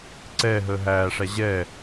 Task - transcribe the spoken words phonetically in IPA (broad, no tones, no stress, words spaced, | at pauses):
ǀɛ ɦəːɦæːʂæ ʑɛ